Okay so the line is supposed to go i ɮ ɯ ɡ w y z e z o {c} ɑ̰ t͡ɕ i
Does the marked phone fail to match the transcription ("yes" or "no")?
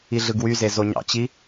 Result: yes